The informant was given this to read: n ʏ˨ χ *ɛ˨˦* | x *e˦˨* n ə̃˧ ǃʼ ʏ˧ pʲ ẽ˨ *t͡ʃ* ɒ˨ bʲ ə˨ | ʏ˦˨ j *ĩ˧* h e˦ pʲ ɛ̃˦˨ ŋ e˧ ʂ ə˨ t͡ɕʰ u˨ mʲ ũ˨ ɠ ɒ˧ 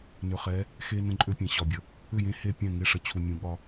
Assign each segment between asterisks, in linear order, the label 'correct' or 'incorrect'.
correct, incorrect, incorrect, incorrect

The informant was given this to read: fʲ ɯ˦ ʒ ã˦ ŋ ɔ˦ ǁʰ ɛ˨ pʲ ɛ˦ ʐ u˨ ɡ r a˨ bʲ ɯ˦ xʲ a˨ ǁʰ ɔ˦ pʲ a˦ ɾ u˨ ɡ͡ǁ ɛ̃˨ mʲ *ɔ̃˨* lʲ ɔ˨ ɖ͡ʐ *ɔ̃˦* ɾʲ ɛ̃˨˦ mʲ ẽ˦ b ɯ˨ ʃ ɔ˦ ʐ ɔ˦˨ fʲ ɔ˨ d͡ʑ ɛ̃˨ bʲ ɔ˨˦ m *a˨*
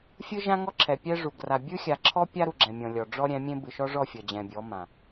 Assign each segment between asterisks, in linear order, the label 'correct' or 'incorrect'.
correct, incorrect, incorrect

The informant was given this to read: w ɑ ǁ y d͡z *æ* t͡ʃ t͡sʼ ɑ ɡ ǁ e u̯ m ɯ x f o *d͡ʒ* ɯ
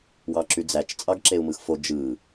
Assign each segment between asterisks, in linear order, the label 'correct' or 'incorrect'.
correct, correct

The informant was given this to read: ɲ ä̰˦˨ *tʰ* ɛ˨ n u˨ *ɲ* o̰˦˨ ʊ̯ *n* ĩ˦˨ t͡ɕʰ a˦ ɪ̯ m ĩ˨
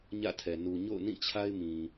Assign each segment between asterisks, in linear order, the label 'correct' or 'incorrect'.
correct, correct, correct

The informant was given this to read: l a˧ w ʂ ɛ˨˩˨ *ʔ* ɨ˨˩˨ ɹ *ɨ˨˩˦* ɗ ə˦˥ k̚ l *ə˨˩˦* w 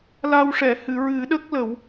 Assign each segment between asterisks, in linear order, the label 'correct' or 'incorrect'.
incorrect, correct, correct

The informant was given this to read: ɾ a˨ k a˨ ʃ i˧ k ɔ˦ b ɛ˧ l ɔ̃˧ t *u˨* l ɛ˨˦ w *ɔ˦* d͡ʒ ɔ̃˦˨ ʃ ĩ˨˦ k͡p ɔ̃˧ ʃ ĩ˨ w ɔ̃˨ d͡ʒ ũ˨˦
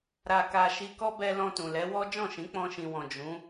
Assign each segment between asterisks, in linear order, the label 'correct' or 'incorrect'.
incorrect, correct

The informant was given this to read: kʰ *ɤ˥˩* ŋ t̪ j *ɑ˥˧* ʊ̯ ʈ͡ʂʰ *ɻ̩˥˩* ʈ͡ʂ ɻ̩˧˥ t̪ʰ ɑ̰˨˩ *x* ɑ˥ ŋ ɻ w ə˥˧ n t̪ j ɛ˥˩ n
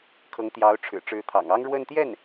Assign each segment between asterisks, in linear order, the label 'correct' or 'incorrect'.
incorrect, incorrect, incorrect, incorrect

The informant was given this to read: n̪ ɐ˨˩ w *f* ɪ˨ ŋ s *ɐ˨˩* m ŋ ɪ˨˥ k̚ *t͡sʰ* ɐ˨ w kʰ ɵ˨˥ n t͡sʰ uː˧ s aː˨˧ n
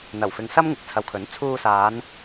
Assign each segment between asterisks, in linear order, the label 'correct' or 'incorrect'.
correct, incorrect, correct

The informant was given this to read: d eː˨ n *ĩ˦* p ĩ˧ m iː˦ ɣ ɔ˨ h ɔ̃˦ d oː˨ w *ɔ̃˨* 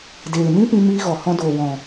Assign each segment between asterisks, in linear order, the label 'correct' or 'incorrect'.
correct, correct

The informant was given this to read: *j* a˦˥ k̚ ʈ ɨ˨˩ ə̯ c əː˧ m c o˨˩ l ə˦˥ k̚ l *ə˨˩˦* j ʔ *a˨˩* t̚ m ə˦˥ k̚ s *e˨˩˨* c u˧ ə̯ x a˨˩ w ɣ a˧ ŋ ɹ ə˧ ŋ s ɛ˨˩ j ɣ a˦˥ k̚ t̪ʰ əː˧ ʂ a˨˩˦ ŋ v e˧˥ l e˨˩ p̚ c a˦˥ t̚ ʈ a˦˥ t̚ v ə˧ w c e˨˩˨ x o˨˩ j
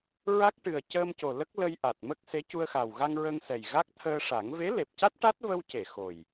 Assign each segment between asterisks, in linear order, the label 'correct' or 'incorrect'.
incorrect, incorrect, correct, incorrect

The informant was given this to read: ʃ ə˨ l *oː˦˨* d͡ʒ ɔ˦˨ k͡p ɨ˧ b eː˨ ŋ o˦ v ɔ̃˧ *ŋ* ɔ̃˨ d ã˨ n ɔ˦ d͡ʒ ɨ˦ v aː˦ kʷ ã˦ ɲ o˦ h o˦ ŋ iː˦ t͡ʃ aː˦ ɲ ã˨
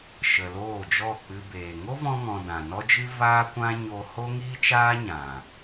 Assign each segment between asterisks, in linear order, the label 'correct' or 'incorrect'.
correct, correct

